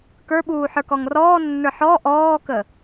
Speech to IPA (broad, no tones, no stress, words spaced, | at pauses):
kə˞ɓuː ħə˞kɔŋrɔːnːə˞ ħɔ ʔɔːkə